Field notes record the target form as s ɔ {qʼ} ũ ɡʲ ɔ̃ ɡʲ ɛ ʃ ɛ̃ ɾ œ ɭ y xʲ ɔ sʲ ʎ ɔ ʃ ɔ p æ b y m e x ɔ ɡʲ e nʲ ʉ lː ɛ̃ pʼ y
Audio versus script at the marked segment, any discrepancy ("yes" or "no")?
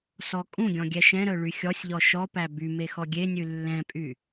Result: yes